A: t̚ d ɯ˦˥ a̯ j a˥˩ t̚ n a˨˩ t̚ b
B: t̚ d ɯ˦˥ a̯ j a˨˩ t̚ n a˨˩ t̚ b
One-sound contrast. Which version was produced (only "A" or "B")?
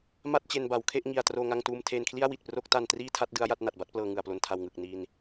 A